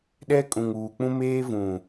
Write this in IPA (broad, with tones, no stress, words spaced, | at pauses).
ɗɛ˦kʼũ˨ŋuː˨k͡pũ˦ meː˦vũ˨